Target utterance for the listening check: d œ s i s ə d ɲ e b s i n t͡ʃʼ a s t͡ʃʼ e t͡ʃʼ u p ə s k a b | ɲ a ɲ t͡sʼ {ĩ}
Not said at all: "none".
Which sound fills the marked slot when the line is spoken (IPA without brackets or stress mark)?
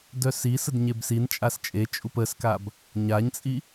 i